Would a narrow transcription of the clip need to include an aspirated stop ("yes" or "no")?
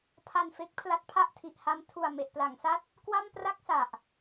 yes